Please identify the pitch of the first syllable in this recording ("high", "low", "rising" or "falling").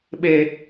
low